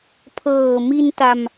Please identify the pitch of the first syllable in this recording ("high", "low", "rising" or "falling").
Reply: low